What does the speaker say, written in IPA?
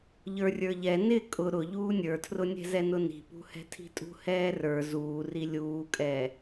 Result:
ʎə˞rʲə˞ʎɛ nɪ kʼʊ ɾʊʎuː nʲə˞tʰrʊnʲɛ̤zɛ nʊni̤pṳhɛ̤ tʰi̤tʼṳhɛːrə˞ zuːri lʲuːkʼɛː

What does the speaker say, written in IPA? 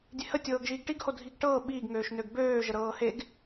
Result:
dʲehətʲɤːɡʒiːɡ ʈiɡho dʱiɡʈɤː ɓiːɡŋøːʃnøɡ bøːʒəɾɤː heɡ

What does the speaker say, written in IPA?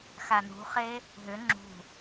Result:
xanṳχe | ɦʏ ŋ͡ǁṳ

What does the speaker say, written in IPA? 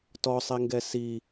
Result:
tɔsˤiŋɡɛ si

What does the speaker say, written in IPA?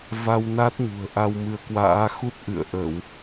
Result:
va˧wna˦˥t̚ ɲṳ˨˩ə̯ʔa˧wmɨ˨˦ə̯kwa̰ː˧˥ xu˦˥t̚ʔɨ̰˧˨ə̯ʔə˧˩˨w

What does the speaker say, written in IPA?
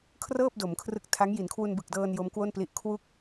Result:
kʰrɤː˥˩p̚do˩˦m kʰrɯ˦˥k̚ tʰa˦˥ŋ ji˩˦nkʰwu˧nbɯ˨˩k̚dɤː˧n jo˦˥mkwo˥˩npli˦˥ʔ kʰwu˥˩k̚

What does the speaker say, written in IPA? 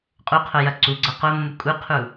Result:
qʼuqʰo jɐǀuɡ͡ǀɐ qomːu kʼuqʰu

